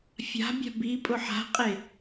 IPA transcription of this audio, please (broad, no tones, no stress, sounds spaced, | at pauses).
fʲ a̤ bʲ a̤ b i pʼ ʊ ħ a̤ qʼ e